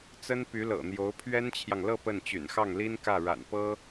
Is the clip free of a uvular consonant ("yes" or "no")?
yes